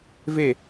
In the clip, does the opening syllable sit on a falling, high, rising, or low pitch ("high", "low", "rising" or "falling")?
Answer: falling